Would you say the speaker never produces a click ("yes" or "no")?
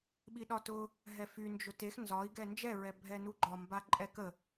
no